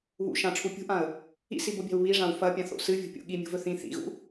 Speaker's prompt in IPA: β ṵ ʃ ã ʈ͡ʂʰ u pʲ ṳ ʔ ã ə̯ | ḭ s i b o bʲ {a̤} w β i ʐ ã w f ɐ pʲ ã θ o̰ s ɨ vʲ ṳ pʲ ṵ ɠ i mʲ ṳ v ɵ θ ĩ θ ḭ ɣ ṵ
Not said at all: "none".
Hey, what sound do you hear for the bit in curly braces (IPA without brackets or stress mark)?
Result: a̤